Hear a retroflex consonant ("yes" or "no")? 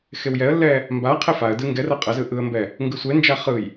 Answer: no